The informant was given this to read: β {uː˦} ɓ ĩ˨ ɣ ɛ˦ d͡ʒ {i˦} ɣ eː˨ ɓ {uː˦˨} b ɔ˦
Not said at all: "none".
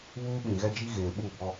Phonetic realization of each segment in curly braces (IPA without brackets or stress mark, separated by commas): uː˦, i˦, uː˦˨